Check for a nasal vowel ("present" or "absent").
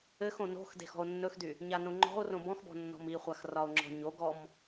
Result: present